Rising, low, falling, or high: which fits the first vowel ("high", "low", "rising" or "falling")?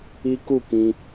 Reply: high